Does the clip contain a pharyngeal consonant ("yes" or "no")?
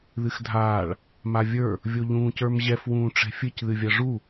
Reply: no